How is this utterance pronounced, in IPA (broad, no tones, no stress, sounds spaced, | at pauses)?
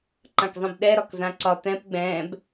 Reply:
ǃ ã k zˤ ĩ b ɗ ɛ ɾ ɒ k z ã ǀ ɒ t̪ ɛ̃ p ɡ͡b ɛ̃ː b